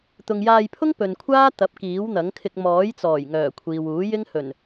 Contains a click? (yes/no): no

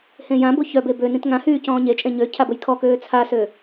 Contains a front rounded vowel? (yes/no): yes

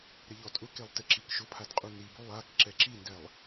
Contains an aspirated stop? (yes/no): yes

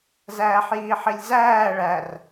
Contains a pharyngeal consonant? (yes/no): yes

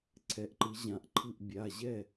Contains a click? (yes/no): yes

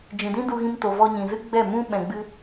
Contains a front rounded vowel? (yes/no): no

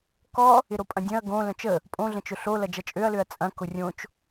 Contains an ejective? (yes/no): yes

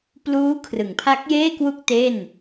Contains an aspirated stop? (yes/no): yes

